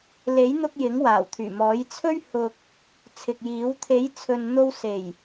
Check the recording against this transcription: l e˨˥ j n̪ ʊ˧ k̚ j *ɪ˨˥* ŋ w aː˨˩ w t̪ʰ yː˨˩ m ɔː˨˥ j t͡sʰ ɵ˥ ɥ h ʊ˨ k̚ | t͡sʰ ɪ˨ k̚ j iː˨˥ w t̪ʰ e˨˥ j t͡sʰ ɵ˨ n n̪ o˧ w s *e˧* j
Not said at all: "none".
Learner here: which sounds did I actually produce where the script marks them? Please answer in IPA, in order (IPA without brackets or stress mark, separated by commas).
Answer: ɪ˨˥, e˨˩